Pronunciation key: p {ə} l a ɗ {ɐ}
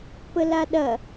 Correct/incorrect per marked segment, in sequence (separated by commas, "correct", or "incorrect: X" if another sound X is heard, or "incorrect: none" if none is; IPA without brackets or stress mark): correct, correct